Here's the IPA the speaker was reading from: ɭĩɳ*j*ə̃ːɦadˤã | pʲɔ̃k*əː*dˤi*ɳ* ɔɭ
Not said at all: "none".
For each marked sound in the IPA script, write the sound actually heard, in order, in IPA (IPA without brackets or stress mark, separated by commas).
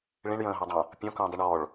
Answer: j, ə̃ː, ɳ